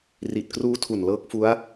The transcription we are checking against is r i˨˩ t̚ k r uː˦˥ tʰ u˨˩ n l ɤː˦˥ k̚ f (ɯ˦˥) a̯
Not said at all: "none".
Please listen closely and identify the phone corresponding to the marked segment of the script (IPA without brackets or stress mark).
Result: u˦˥